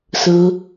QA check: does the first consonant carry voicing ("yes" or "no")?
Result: no